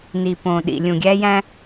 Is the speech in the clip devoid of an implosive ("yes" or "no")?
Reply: no